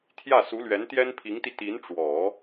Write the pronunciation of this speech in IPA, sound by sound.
t̪ʰ j ä˥˩ s u˧˥ l ɥ ɛ˧˥ n t̪ j ɛ˥ n pʰ i˧˥ ŋ t̪ i˧ t̪ i˧˥ n ʈ͡ʂ w ɔ˨˩˦

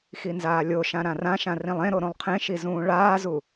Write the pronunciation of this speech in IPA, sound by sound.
x i n z aː lʲ o ʃ ã ɾ ã r ã ʃ ã r ĩ lˠ ẽ ɾ o ɾ õ lˠ qʰ ẽ ʃ i z ũː ɭ aː z u

